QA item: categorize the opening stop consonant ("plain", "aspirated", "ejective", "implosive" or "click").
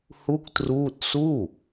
plain